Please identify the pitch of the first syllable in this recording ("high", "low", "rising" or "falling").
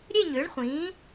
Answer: falling